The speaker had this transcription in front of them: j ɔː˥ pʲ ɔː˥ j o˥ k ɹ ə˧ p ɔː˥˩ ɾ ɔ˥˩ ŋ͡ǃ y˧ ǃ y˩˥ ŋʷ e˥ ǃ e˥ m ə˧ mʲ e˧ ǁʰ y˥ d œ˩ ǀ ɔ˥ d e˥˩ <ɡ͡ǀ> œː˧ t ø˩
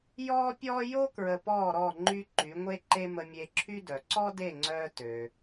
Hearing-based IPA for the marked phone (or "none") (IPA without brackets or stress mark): ŋ͡ǀ